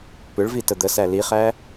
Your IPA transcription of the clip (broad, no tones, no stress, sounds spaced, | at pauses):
p ʏ ɭ v i t ə d̪ ə s æ l i χ æ